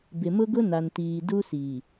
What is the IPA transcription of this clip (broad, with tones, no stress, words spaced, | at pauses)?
bɪ˨mʊ˦ɡʊ˦ na˨ntiː˨ du˦si˨